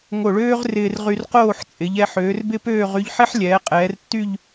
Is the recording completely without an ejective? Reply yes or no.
no